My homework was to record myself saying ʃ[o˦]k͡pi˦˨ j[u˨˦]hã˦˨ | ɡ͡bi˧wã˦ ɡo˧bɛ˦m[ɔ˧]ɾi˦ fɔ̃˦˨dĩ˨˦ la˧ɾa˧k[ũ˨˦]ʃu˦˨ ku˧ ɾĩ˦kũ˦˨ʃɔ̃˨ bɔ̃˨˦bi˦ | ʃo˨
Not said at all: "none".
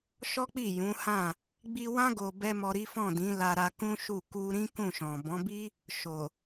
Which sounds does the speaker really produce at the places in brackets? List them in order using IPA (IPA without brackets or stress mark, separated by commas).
ɔ˦, ũ˨˦, ɔ˧, ũ˦